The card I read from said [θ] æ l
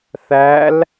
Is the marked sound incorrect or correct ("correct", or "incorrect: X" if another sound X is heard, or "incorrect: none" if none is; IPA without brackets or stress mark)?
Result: correct